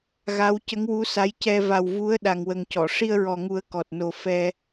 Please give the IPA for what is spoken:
ɣ a˧˥ w c ə˧˥ ŋ w u˧˥ s a˧˥ j c ɛ˧ v a˨˩ w v u˧˥ ə̯ ɗ a˨˩ ŋ w ə˨˩ ŋ c ɔ˨˩˨ ʂ i˧ ə̯ ɹ ɔ˨˩ ŋ u˨˩˦ ə̯ k ɔ˨˩ t̚ n o˨˩ f ɛ˧

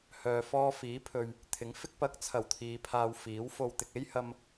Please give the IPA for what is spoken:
h œː˧ f ɔː˥ f iː˨˥ pʰ ɵ˨ ɥ | t̪ʰ ɪ˨˥ ŋ f ɪ˥ k̚ p ɐ˧ k̚ t͡sʰ ɐ˨˩ w t̪ʰ iː˨˧ pʰ aː˧ w f iː˨˥ w f o˧ w t̪ ɪ˨ k̚ e˥ j h ɐ˧ m

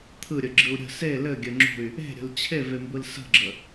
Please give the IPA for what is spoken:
t̪ʰ ɯ ɾʲ ə ɡ͡ǁ ɯ u̯ ɾʲ ə̤ s e l ɘ ɡʲ ɘ ŋ͡ǁ ṳ y̯ | e̤ ɾʲ ə̤ l t͡ɕʰ e v e m b ɯ l s ə̤ ɡ͡ǁ ə

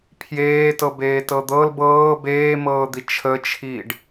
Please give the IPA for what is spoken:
pʰ j eː t ɤ b eː t ɤ d̪ ɤ l b ɤː b eː m ɤː d̪ i t͡ʃʰ ə t͡ʃʰ iː ɖ

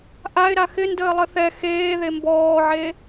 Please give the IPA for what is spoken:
ʔ a ɪ̯ ɾ a x ɪ n d əː lˠ ə θ ɛ x eː ð e m b ɔː ʕ e

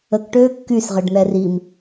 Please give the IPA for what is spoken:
ə k ʈ øː kː y s ʁ ə ɖ n̪ ɛ r i m

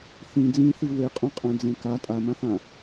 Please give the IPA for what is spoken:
θ ĩ d͡z ĩ θ i w e qʼ õ qʼ æ̃ d͡z ẽ k a tʼ a m ã θ ã

